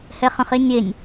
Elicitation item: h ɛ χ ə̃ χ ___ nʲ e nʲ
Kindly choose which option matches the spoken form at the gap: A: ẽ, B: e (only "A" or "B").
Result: B